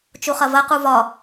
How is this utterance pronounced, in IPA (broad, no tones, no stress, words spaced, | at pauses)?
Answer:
t͡ʃuχɐvɐ quvɒ